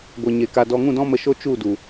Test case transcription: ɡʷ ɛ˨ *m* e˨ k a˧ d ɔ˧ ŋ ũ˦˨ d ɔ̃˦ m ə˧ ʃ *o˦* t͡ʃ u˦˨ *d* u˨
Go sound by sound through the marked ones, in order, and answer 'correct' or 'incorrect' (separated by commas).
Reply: incorrect, correct, correct